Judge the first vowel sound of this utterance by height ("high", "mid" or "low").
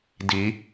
high